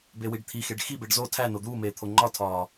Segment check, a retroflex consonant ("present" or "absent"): present